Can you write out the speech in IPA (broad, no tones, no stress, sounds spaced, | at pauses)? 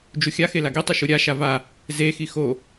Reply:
d͡ʒ u xʲ a x e l a ɡ e tˤ o ʃ u ɾʲ a ʃ a v a | z e x i x o